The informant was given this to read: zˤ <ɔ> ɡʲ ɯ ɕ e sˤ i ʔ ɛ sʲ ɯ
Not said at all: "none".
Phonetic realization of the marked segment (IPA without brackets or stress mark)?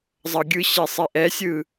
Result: ʌ